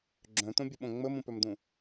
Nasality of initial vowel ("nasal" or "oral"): nasal